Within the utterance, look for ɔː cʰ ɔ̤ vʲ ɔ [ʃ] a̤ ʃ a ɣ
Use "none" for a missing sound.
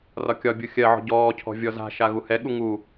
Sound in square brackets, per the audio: z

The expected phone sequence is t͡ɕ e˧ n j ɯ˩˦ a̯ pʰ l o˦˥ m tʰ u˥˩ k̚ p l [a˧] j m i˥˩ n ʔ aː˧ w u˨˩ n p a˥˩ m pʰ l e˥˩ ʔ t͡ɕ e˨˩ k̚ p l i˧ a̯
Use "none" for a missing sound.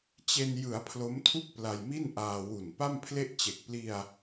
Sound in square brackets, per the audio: a˧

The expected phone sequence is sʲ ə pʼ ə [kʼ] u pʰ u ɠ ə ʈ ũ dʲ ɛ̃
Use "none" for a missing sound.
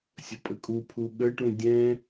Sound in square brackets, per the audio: kʼ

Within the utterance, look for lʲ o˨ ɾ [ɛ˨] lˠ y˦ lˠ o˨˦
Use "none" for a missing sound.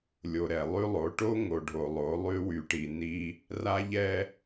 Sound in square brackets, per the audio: ɛ˨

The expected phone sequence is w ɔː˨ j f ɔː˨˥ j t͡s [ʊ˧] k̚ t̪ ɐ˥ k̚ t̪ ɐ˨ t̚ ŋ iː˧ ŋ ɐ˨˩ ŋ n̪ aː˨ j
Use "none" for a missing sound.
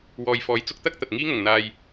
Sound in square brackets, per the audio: ʊ˧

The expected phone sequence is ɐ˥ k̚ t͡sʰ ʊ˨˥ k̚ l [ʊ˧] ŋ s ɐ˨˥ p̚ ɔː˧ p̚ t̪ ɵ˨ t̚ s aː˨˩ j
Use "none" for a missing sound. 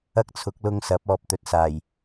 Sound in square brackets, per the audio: ʊ˧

